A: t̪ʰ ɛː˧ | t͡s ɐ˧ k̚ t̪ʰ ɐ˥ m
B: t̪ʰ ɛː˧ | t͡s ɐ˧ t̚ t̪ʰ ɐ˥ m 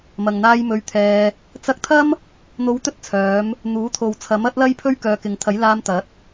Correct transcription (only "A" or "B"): A